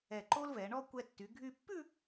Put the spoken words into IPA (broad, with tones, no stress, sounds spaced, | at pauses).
ɛ˧˩ ǃ o˥ l v ɛ˩˧ ɳ ɔ˥˧ kʷ ɛ˧ tː y˩˧ ɡʱ y˧ pː ʉ˥˧